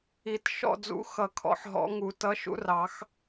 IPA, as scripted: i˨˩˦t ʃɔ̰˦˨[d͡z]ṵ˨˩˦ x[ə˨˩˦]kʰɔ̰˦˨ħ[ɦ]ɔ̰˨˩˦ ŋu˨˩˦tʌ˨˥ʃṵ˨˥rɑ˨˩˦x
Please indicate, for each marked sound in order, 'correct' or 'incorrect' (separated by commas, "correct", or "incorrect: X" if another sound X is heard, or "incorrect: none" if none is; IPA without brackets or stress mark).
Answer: correct, incorrect: ʌ˨˩˦, correct